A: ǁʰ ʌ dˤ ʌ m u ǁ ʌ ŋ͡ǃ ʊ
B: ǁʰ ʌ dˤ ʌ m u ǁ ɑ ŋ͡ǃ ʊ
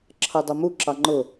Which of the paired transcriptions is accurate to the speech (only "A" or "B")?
B